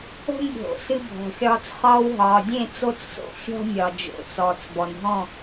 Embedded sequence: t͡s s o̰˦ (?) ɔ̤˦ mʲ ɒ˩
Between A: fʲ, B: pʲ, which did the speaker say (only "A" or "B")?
A